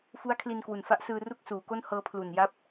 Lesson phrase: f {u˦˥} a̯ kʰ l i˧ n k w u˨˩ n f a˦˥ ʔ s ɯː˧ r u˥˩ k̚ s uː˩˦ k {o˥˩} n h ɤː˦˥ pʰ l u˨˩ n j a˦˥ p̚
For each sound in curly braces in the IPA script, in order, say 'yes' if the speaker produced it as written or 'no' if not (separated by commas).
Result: yes, yes